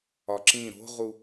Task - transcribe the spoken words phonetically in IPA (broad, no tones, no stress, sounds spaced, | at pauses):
ɒ ǁ ĩ ɾ o̤ ʁ u